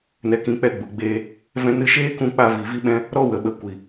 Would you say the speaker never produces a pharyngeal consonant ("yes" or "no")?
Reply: yes